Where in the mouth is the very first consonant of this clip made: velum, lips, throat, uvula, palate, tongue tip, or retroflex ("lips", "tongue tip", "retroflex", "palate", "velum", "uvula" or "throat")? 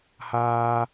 throat